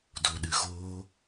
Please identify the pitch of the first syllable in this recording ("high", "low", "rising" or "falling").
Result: low